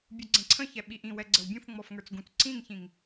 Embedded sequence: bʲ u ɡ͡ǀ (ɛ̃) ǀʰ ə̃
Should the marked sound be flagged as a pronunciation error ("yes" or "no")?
no